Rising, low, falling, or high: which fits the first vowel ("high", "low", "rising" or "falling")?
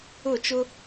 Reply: falling